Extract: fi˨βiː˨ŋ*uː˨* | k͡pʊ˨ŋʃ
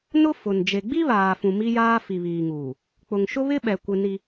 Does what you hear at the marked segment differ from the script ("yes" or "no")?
no